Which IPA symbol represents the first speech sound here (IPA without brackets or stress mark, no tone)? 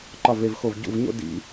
ǃ